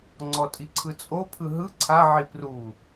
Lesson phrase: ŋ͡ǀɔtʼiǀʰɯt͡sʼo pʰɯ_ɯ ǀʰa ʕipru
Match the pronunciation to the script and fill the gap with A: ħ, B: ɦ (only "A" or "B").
B